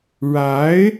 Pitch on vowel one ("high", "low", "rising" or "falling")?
rising